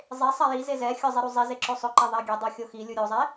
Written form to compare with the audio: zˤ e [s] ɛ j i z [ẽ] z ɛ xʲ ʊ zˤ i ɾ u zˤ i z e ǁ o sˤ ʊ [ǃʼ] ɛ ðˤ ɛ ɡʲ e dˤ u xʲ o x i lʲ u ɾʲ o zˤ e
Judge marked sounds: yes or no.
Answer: no, no, no

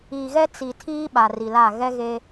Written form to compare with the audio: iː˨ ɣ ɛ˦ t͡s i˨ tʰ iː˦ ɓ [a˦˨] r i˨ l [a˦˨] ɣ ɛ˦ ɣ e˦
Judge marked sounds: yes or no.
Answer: no, yes

